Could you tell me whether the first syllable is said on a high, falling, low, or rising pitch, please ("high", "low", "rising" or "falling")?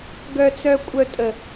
high